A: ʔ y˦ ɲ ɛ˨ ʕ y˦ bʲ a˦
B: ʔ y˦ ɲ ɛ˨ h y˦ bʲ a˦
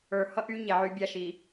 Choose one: A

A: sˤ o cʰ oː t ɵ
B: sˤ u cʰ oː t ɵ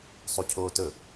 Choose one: B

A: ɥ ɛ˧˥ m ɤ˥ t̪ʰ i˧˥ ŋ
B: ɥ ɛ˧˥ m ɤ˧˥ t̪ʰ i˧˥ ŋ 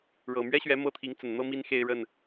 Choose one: A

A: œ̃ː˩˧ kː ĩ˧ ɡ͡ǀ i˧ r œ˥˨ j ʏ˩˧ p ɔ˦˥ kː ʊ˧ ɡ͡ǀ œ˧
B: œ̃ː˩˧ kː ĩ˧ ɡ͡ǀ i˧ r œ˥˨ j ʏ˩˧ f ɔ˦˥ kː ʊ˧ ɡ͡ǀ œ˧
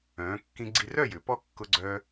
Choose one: A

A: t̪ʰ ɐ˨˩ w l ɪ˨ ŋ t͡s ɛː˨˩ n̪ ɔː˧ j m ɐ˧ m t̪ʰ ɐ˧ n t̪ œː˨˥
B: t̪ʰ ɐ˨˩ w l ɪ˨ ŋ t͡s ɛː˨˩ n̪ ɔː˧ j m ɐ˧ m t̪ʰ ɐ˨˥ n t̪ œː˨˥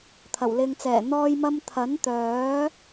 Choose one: B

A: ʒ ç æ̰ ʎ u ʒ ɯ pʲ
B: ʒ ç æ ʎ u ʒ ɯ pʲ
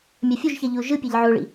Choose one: B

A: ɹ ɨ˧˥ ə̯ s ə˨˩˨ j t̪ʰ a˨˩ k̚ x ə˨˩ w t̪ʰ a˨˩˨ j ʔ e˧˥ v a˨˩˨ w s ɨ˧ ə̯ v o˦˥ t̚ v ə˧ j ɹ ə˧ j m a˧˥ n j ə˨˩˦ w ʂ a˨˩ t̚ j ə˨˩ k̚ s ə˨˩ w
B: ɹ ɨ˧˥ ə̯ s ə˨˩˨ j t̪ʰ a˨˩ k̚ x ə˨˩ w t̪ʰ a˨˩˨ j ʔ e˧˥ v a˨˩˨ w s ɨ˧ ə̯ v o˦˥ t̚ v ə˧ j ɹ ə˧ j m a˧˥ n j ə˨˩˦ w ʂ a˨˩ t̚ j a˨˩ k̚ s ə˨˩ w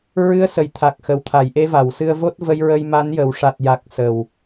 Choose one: B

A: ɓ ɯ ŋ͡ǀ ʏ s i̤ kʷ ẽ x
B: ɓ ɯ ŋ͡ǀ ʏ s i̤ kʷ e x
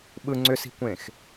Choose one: A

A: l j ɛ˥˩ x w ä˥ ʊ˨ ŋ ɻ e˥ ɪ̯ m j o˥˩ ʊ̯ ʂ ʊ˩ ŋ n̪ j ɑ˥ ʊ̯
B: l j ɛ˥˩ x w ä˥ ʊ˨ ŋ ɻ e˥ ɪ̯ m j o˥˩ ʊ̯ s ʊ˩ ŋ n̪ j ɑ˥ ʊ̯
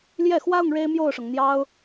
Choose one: A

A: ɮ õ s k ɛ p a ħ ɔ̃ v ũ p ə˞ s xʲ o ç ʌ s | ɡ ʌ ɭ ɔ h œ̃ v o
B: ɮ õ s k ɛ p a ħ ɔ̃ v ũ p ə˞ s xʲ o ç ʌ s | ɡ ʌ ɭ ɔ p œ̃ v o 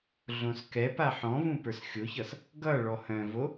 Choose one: A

